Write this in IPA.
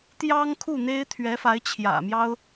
t̪jɑ˥ŋkʰu˥˩n̪e˥ɪ̯ t̪ʰɥɛ˧˥fa˧˥ɪ̯t͡ɕʰjä̰˨˩mjɑ˥ʊ̯

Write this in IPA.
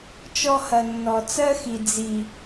t͡ʃɔ˧hɐ˨nːɔ˨ t͡sɜ˦xi˨ d͡zi˨

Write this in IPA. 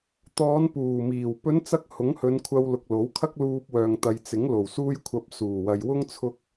t̪ɔː˨˧npuː˨˩miː˨˩w pɵ˨˧n t͡sɐ˥k̚ hʊ˨˥ŋhɵ˨˧nkʷʰɐ˧wlʊ˨k̚ lo˨˥wkʰɐ˥k̚ luː˧p̚wœː˨ŋt̪ɐ˨j t͡sɪ˨˥ŋ lo˨˩w suː˧jkʷʰɐ˨p̚ suː˨˩wɐ˨jwʊ˥ŋ t͡sʰʊ˥k̚

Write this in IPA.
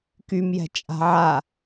kymjɛ̤ t͡ʃʼa̤ʕa

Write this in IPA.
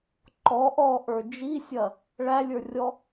ǃɔ ʔɔ ʔə˞d͡ʒisʲɐ | ɭælʲə˞rʲɔ

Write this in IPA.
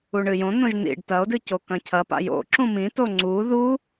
uɳɨjõn̪õʒ n̪ḭɖ tɐo̯dɨ cokɐ̃cʰɐpa̰ jo̰ ǁũmĩto ŋ͡ǀu ðu

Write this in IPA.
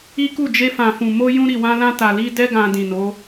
i˦ku˦˨ d͡ʒe˧fã˨fũ˨ mo˧jũ˧ ɾi˨wã˧lã˧ ta˨li˧dɛ˦ ɡã˧dĩ˨no˨˦

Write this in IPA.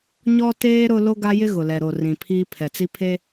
ɲɔ˦teː˦ ɾʊ˦ lo˦ɡa˦jɪ˦ ɣʊ˨lɛ˨ɾo˨ rĩ˨pʰiː˦ pʰɛ˨t͡si˦ pʰe˦

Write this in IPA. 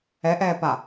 ɛʔɛː pa

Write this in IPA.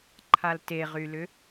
ǃʰalteʁylʏ

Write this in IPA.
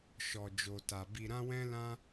ʃɔ˨d͡ʒo˨ta˨ bi˧ɾã˦wɛ̃˦lã˦

